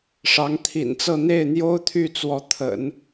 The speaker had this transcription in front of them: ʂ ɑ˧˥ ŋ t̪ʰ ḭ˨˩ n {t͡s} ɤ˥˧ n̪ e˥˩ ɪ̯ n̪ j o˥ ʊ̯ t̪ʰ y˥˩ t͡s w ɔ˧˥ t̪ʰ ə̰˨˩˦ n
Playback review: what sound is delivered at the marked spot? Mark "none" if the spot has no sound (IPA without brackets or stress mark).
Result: t͡s